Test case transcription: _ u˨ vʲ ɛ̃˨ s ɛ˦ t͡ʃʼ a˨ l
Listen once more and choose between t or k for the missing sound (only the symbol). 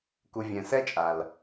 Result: k